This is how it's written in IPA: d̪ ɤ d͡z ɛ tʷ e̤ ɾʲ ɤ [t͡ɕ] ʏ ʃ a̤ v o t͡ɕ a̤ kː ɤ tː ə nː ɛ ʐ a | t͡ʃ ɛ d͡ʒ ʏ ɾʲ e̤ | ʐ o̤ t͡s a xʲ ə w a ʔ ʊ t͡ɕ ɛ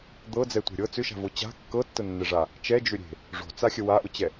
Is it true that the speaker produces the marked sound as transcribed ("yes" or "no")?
no